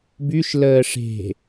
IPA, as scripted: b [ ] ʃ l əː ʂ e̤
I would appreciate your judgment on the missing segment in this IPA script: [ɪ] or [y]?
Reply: y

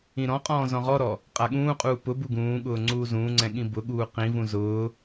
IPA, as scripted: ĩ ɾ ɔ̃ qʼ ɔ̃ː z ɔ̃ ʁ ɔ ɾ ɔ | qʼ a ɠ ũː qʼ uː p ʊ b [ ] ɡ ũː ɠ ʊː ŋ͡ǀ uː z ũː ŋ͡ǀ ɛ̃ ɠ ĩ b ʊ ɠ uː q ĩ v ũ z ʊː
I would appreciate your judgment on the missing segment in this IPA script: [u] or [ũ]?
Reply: u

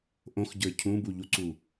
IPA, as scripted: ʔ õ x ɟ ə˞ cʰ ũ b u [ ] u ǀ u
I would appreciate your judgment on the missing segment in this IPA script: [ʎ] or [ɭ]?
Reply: ʎ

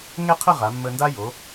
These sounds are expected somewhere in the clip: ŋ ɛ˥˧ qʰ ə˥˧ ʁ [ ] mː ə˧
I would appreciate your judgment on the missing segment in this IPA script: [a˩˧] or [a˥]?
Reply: a˩˧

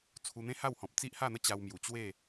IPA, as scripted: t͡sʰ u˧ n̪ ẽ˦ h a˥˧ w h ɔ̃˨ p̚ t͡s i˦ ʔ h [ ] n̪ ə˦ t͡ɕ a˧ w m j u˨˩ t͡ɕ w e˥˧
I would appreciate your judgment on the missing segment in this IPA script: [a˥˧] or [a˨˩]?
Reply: a˥˧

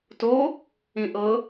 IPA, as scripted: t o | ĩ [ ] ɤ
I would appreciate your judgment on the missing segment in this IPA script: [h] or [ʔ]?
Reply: ʔ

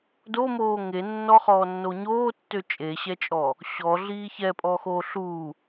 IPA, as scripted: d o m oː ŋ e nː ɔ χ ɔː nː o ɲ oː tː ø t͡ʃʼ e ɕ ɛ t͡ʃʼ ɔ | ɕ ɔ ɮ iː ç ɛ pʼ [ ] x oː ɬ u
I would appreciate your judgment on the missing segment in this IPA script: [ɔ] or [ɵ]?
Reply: ɔ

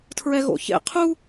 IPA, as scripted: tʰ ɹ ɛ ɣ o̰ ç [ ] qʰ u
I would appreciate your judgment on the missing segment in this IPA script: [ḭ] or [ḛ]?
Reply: ḛ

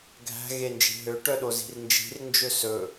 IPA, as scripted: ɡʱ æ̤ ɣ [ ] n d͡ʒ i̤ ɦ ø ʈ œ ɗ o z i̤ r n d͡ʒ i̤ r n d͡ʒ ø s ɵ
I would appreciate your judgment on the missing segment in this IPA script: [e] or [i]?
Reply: e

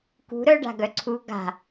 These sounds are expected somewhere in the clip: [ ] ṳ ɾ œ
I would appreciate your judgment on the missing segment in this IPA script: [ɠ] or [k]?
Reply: k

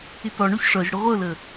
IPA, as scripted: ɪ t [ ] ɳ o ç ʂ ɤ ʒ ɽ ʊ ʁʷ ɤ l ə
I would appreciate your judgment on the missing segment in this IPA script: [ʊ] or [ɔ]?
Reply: ɔ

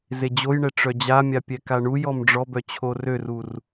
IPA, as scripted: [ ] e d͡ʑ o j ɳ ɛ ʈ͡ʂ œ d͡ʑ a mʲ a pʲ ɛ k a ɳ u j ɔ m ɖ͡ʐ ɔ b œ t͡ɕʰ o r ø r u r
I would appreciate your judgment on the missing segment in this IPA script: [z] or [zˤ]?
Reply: z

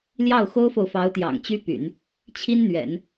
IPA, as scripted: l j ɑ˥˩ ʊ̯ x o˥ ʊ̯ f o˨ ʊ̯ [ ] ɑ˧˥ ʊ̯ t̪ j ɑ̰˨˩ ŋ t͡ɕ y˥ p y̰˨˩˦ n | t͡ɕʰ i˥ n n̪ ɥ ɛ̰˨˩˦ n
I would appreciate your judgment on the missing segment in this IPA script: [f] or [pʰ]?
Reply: f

